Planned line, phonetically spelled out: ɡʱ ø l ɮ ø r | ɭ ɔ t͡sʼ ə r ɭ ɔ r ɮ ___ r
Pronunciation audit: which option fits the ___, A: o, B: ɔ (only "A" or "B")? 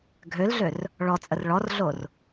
A